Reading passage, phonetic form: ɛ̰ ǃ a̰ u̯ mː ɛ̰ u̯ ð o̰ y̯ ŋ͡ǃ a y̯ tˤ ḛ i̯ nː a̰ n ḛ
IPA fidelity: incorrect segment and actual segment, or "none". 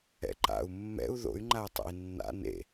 none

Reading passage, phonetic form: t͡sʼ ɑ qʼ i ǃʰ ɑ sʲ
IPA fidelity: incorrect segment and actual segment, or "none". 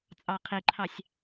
qʼ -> qʰ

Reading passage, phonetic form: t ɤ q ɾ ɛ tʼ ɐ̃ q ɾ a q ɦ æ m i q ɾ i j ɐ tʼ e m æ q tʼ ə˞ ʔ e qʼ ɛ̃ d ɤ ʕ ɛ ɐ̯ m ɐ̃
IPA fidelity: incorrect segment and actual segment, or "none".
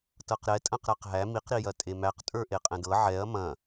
none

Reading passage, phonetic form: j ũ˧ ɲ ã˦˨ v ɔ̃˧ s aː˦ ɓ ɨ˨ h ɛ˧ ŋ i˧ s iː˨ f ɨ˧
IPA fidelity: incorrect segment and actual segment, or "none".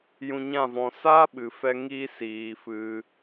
h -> f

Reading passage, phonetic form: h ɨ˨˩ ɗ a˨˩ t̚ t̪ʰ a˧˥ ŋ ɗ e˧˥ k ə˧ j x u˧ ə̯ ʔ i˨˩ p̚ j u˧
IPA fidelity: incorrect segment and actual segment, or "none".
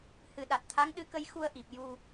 e˧˥ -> ɨ˧˥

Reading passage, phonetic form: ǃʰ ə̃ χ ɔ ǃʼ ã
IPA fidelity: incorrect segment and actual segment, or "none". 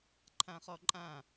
ə̃ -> ã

